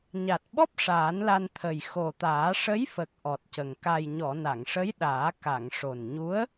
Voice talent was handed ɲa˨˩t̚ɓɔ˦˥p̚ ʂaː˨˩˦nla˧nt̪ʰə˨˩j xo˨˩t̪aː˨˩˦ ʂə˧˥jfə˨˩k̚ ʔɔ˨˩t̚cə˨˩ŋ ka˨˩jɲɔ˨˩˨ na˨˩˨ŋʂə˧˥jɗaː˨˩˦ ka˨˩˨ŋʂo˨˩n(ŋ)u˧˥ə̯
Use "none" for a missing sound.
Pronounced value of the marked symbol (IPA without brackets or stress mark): ɲ